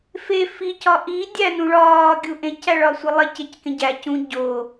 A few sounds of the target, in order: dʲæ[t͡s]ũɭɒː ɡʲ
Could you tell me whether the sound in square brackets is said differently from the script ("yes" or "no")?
yes